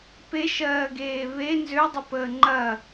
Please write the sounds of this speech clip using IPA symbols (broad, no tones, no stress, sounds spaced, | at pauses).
p e ʃ ɜː ɡ eː β e n z ø dˤ ə p əː ŋ͡ǃ ɐ